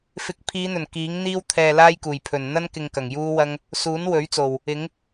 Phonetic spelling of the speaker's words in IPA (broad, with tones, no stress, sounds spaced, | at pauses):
f ɪ˨˥ k̚ pʰ iː˨˧ n̪ ɵ˨˩ n k iː˨˥ ŋ n̪ iː˥ w t̪ʰ ɛː˨ l aː˥ j k uː˨˩ j pʰ ɵ˨˩ n n̪ ɐ˥ n k ɪ˨ ŋ k ɐ˨˩ ŋ j uː˥ w ɐ˥ ŋ | s uː˨˥ n w ɵ˨˥ ɥ t͡s o˨˩ w | ɪ˨˥ ŋ